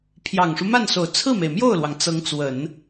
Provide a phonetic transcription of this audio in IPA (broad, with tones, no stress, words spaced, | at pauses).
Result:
pʰjɑ˨˩ŋʂu˦ma˥˩nso˨˩ʊ̯ t͡sʰɹ̩˥˩me˩ɪ̯mjo˥˩ʊ̯lwɑ˩ŋ t͡sɤ˧˥ŋt͡swə˨˩˦n